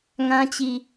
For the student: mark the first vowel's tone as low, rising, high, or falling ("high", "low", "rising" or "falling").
high